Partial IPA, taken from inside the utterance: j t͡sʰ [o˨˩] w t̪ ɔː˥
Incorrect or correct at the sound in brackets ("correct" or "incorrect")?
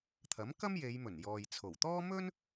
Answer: correct